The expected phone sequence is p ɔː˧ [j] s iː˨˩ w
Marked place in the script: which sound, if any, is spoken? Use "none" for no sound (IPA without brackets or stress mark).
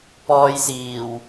j